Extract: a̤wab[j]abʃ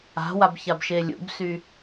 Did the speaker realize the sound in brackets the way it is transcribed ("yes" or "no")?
no